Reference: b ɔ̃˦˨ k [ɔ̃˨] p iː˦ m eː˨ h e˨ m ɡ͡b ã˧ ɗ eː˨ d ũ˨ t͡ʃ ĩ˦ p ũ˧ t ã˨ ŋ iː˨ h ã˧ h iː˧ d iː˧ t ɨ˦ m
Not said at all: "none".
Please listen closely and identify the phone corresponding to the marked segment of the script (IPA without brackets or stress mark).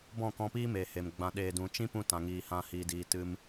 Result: ɔ̃˧